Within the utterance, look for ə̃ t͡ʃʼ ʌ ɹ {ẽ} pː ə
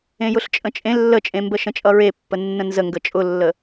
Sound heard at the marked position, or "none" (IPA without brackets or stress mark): e